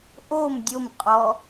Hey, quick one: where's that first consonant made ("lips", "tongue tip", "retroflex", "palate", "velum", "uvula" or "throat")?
throat